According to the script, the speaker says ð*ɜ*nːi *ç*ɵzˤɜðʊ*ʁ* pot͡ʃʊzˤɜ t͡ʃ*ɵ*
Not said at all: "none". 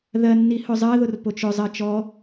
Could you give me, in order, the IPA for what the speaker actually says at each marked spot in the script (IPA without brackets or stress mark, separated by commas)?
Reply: ɜ, h, r, ɔ